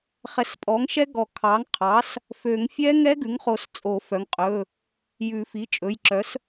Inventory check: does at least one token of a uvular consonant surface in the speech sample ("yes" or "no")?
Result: yes